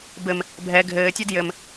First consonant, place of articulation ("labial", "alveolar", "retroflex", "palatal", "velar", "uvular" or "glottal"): labial